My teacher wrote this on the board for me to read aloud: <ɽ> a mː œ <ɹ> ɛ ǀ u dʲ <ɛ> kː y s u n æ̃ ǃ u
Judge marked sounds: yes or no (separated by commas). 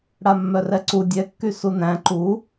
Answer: yes, no, yes